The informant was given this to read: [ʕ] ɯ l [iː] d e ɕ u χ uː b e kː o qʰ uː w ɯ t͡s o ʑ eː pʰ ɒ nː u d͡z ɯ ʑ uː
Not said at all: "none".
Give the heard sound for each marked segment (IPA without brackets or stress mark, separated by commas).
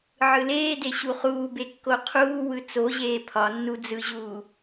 ʕ, eː